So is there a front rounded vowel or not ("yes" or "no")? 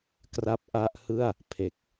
no